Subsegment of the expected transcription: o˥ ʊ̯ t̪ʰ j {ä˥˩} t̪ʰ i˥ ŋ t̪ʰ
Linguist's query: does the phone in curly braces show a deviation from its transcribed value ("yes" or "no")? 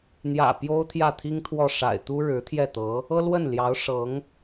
no